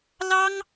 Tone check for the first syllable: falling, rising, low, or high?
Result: high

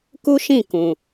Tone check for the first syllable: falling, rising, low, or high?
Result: high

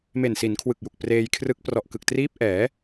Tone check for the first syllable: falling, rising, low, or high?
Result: low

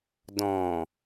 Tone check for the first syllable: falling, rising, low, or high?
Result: low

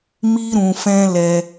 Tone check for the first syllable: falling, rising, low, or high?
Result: high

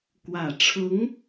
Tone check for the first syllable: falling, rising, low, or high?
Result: low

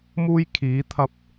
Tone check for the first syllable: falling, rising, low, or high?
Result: high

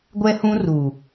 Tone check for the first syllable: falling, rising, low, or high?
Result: high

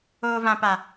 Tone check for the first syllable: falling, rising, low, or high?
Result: high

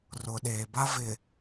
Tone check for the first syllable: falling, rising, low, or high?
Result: low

